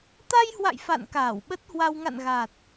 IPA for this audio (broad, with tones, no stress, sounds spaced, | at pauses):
t̪ a˧ j h w a̰˧˨ j f a̰˧˨ n k aː˧˩ w ɓ ə˦˥ t̚ h w a˧ w ŋ a̰˧˨ n ɣ a˨˩ t̚